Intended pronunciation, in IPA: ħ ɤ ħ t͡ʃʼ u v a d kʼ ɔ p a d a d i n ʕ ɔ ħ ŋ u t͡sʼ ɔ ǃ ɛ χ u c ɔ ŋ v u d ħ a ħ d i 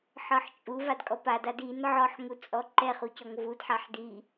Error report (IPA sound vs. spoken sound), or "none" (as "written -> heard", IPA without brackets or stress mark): none